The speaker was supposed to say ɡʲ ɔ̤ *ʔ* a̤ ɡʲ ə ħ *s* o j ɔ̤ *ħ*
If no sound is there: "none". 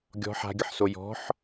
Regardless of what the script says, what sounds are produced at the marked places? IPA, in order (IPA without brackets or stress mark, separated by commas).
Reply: ħ, s, ħ